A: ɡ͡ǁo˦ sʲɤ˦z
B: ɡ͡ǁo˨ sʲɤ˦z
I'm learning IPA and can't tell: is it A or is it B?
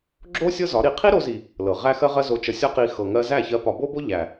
A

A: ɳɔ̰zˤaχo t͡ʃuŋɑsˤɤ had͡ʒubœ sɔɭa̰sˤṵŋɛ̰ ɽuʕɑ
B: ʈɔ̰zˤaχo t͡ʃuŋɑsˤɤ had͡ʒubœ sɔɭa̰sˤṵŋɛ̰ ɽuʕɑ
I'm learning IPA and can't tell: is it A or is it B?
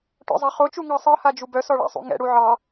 B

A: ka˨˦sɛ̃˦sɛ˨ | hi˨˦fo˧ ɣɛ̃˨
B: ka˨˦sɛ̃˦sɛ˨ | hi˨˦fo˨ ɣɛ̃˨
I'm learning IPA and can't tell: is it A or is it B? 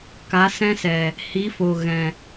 B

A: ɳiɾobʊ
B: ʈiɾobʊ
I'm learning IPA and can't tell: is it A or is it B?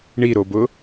A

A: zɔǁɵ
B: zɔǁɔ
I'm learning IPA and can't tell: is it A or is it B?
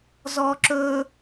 A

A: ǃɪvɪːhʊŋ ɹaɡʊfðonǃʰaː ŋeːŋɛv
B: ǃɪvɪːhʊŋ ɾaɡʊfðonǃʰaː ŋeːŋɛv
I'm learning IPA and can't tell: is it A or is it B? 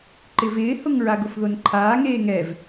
A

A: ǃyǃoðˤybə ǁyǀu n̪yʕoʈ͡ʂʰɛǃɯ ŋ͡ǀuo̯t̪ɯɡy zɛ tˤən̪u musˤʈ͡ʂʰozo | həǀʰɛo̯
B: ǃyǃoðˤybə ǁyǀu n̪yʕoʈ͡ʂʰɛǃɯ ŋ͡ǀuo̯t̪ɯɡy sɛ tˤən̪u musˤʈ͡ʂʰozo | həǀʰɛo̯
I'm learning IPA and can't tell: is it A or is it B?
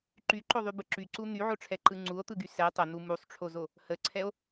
B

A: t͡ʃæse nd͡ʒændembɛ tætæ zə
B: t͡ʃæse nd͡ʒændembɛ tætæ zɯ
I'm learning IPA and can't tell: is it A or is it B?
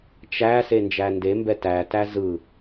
B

